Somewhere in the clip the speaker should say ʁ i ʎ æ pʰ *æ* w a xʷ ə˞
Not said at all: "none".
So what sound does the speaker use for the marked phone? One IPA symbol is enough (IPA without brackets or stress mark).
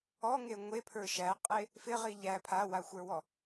a